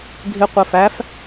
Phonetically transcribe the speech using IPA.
ɡʱ ɪ qʷ ɜ f æ f

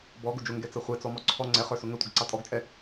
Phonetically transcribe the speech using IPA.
b ɔ ɡ ʊ d͡ʒ ʊ ŋ ɡ ɛ t͡s ʌ χʷ ɛ t͡s ɔ m ɔ ǀʰ ɔ ŋ͡ǀ ɛ χ ə˞ s ʊ ŋ ə tʷ ɪ ɡ ǀ ɑ tʼ ɔ ɡ t͡ʃʼ ɛ

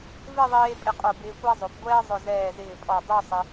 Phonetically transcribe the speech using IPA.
v ɪ˥˧ ðˤ eː˧ pʼ ɪ˧ qʼ o˧˩ b ɪː˧ kʷ a˥ zˤ o˩˧ p ɡʷ ɛː˥ zˤ ʊ˧˩ z ɛː˧˩ z ɪː˧˩ pʼ ɔ˧˩ dˤ u˥˧ sˤ ɪ˧

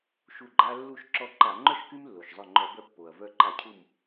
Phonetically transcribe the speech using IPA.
ʃ u˧˩ ɡ͡ǃ a˦ lː u˧˩ ʃ ǁ ɔ˧˩ ǃ a˧˩˧ ŋ͡ǃ œ˥˨ ʃ k y˦ m lː o˩ ʃ zˤ œ˧˩ ŋ͡ǃ ɔ˧˩˧ b œ˧˩ pː o˩ ɐ̯ v œ˧˩ ǃ a˧˩˧ cʰ u˧˩ m

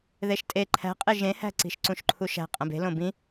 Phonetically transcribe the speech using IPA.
ð e ʃ tʼ e ǃʰ æ̤ qʼ e ʒ ẽ h æ̤ ǀ i̤ ʃ ǀ ũ ʃ ǃʰ u ʃ æ̤ qʼ æ̃ b e̤ l õ b ĩ

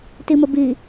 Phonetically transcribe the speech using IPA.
t i m ə b i

